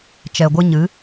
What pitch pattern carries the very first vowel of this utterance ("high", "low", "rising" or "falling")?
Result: low